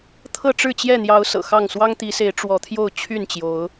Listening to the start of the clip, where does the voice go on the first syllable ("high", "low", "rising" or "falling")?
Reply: falling